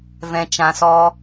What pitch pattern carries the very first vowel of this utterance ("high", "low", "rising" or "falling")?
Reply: low